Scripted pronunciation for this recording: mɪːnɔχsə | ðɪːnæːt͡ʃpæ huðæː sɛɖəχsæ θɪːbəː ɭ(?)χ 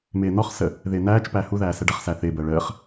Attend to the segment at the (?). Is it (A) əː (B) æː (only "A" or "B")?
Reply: A